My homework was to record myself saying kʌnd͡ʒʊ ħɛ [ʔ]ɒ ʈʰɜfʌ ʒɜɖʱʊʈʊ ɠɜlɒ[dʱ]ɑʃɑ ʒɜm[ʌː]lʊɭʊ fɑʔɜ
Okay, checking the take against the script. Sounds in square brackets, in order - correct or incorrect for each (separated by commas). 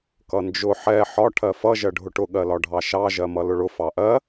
incorrect, incorrect, incorrect